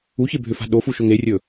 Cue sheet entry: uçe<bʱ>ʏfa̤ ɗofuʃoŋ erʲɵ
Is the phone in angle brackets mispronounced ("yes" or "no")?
no